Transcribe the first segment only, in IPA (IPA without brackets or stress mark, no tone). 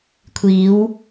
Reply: kʷʰ